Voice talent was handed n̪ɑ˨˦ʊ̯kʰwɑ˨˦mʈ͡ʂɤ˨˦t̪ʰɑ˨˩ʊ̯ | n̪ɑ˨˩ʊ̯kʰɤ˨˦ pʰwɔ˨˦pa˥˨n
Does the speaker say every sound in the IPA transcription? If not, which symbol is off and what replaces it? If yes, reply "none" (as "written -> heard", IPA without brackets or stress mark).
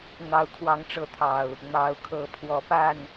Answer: m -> ŋ